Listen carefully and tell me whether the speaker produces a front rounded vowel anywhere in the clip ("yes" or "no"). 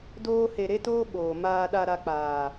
no